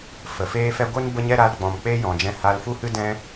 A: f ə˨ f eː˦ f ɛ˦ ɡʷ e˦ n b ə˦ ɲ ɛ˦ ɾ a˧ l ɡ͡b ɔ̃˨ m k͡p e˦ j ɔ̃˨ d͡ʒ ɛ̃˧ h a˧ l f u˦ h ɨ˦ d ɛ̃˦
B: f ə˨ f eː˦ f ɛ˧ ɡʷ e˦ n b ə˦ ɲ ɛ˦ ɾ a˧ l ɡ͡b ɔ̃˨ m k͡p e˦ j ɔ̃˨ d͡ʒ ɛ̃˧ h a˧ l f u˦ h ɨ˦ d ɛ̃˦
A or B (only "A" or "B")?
A